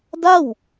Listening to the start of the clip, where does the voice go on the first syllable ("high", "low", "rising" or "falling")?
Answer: falling